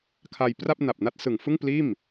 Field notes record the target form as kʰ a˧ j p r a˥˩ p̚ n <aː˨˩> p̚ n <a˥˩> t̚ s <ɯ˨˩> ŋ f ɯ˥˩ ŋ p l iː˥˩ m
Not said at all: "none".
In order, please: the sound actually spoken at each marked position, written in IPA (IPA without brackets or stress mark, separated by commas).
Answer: a˨˩, a˥˩, ɯ˨˩